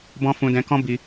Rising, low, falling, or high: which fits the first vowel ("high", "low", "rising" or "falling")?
high